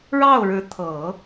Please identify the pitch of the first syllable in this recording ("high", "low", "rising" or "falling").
falling